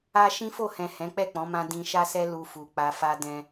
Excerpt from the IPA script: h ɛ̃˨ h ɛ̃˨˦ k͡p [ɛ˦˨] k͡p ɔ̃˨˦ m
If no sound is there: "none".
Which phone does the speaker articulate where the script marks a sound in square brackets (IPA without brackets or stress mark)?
ɛ˦˨